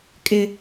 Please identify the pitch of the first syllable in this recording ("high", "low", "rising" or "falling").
high